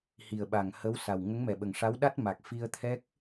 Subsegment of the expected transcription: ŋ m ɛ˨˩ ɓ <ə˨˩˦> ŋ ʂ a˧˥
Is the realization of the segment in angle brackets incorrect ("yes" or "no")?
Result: yes